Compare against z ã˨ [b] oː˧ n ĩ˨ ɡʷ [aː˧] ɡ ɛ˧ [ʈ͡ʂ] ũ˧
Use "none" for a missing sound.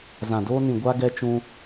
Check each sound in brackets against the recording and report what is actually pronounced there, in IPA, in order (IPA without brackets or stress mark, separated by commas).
d, a˧, t͡ʃ